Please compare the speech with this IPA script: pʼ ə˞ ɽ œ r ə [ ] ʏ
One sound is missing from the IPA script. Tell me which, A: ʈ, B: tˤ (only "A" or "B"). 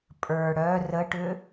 A